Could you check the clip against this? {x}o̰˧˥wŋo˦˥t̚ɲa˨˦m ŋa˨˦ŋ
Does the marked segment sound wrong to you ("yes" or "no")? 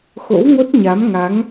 no